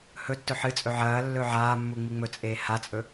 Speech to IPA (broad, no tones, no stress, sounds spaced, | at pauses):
h ɵ tː ɵ ħ ɨ t͡sʼ ɵ ʕ ɐː lː ɵ ʕ aː mː u ŋ͡m i ŋ͡m ɵ t͡sʼ eː h a t͡sʼ ɵ